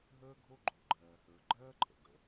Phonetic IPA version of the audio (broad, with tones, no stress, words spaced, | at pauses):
ɦəː˥ɡʱo˥ɡ͡ǃo˩ ɡ͡ǃɜː˩hə˞˩ɡ͡ǃɜː˥ǃʰə̰˩ ɡə̰˩